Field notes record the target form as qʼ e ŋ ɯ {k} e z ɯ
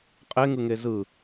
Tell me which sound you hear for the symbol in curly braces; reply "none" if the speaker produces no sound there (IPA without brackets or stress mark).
ŋ